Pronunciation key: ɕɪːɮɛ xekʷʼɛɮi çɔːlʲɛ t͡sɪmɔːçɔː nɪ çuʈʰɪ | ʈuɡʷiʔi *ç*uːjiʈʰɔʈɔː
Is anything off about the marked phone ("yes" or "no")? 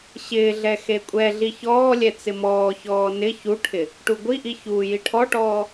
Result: no